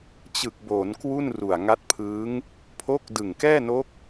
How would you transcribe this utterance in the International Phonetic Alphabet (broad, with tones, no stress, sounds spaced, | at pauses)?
t͡ɕ ɯ˨˩ k̚ b oː˩˦ n k w u˥˩ n r u˨˩ a̯ ŋ a˦˥ t̚ pʰ ɯː˦˥ ŋ | pʰ o˦˥ k̚ d ɯ˨˩ ŋ k ɛː˥˩ n o˦˥ k̚